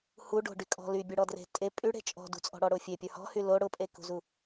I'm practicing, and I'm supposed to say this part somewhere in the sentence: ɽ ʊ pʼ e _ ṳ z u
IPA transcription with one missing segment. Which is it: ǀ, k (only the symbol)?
k